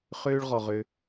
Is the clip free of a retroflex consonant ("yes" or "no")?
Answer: no